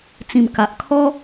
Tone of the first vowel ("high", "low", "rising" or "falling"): low